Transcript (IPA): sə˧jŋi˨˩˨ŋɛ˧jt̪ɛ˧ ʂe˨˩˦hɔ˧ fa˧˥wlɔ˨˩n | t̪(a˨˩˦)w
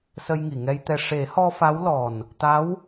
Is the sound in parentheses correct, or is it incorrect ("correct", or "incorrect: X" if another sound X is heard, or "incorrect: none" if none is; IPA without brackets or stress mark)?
incorrect: a˧˥